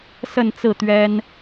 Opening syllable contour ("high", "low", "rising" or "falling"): falling